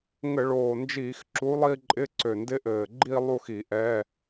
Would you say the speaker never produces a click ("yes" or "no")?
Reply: no